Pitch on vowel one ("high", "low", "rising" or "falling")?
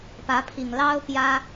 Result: rising